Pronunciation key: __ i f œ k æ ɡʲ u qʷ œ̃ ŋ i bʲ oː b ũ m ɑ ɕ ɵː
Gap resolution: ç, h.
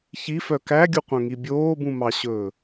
ç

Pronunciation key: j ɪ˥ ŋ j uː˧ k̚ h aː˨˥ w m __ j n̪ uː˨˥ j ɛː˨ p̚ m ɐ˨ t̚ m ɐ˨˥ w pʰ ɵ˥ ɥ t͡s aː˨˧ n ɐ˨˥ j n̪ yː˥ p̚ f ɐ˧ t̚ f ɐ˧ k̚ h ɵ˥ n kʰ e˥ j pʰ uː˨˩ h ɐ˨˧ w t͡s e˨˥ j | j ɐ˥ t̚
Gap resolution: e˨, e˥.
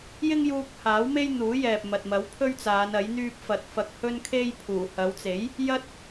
e˥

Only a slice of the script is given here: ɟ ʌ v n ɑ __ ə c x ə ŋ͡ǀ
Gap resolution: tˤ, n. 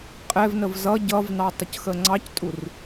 tˤ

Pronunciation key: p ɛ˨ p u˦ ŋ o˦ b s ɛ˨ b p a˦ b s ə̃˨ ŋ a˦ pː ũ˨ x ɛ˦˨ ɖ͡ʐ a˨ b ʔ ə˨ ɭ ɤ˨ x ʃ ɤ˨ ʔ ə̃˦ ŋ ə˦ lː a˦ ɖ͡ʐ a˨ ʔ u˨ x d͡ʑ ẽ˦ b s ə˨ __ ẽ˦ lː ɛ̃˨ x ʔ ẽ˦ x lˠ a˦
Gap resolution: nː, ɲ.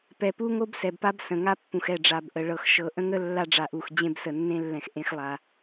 nː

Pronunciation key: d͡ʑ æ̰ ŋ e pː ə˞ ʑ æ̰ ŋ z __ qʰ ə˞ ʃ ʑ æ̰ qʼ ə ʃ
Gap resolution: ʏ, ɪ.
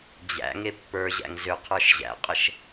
ʏ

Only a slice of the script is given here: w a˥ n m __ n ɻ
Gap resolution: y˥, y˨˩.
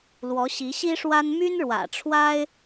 y˥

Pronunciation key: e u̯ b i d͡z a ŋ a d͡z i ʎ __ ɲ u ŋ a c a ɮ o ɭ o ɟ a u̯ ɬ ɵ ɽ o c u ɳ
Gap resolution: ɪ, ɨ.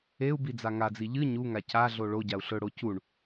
ɨ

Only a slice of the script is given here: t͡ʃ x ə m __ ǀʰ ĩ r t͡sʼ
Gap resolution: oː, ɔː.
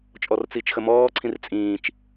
ɔː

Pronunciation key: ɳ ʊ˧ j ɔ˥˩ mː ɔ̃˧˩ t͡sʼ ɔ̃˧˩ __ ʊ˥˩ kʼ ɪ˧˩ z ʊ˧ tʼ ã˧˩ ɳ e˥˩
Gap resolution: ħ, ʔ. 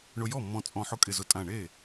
ħ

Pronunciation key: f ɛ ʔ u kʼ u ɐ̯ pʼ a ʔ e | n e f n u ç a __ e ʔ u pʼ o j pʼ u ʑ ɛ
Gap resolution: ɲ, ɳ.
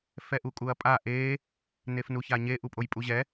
ɲ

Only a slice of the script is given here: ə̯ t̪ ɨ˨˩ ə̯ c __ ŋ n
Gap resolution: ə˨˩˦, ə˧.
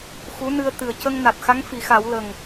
ə˧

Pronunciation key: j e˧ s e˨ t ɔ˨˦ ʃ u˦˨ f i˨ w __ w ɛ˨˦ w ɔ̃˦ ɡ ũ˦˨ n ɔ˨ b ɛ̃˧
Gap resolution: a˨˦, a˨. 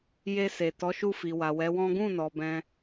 a˨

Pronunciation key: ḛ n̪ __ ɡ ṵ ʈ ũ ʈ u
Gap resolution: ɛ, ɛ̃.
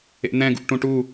ɛ̃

